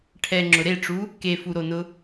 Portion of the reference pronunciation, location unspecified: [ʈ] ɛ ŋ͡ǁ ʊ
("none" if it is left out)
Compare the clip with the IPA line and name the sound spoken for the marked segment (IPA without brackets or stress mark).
ʈʰ